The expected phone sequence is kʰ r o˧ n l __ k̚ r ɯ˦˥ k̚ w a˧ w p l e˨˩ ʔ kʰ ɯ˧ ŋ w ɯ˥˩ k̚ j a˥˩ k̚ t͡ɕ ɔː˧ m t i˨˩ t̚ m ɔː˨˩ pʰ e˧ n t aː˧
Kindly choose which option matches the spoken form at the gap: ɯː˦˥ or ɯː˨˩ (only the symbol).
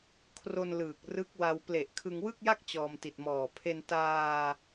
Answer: ɯː˨˩